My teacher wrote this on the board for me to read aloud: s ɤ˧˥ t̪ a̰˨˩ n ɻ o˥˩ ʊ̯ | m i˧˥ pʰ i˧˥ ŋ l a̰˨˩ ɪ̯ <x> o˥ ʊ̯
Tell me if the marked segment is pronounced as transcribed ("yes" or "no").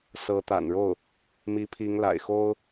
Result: yes